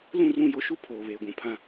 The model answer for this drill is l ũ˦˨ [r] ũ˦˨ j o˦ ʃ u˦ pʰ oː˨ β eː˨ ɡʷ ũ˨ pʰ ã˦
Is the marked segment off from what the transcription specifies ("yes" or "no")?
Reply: no